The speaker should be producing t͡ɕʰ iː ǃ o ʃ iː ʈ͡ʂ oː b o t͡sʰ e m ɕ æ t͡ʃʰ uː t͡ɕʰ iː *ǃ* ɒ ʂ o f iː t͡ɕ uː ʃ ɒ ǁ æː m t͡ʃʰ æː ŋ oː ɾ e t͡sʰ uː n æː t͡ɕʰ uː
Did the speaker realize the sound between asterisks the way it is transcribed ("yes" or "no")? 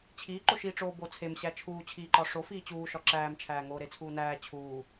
yes